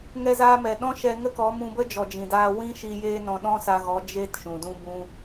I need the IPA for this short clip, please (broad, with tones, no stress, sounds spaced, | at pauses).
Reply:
ŋ ɛ˧ z aː˧ m ɛ˨ ɗ ɔ̃˦ ʃ ɛ˧ ŋ ə˦ k ɔ˨˦ m ũ˧ b ə˦ d͡ʒ ɔ˨ d͡ʒ ĩ˨ d aː˧ w ĩ˦ ʃ i˧ j eː˦ n ɔ̃˧ ɗ ɔ̃˦ s a˧ ɣ ɔ˨˦ d͡ʒ eː˦ t ʃ ũ˨ d ũ˦ b ũ˧